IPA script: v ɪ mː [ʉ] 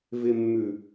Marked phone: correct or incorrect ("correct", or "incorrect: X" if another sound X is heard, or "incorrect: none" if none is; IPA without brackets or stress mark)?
correct